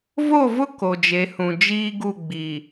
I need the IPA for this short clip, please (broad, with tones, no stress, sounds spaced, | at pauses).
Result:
v o˦˨ v ʊ˦ k o˨ d͡ʒ e˨˦ h ũ˨ d͡ʒ iː˦ ɡ u˦˨ ɡ͡b i˨